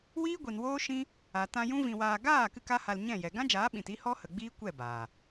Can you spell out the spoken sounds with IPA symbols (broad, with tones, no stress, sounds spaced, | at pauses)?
w iː˦ ɡʷ i˨ n w oː˦ ʃ ĩ˦ | a˨ t ã˧ j ũ˦ v ĩ˧ w aː˧ ɡ aː˦˨ k ɨ˦ k a˦ h a˧ l ɲ ɛ̃˦˨ j ɛ˨ ɡ ã˦ d͡ʒ aː˨˦ ɓ ĩ˨ t i˦ h ɔ˦ h ə˨ ɡ͡b iː˦ kʷ ɛ˦˨ b aː˨